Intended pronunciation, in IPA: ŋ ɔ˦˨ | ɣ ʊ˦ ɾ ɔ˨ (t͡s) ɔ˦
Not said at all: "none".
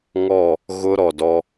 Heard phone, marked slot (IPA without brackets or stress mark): d